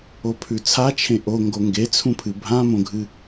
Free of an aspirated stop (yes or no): no